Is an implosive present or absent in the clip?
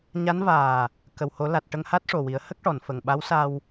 present